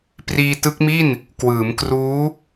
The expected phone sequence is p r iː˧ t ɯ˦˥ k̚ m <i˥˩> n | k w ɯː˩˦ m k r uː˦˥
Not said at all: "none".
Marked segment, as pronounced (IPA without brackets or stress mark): i˥˩